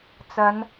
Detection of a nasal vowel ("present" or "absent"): absent